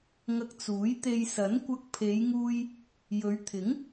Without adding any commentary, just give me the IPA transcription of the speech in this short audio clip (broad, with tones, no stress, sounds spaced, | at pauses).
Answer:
ŋ ɐ˧ k̚ t͡s uː˨˥ j t̪ e˧ j s ɐ˨˥ n kʷ ɐ˧ k̚ pʰ e˨˧ j ŋ uː˧ j | j ɵ˨˧ ɥ t̪ʰ ɪ˨˥ ŋ